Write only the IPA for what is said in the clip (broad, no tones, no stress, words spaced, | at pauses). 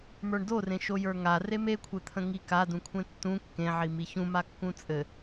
mə˞ɳdorẽ ʃojə˞ŋa remekʷʰet̪ʰə̃ ŋikadũkʷʰẽ tːũ kːẽʕimi çũma kːũt͡sʼɘ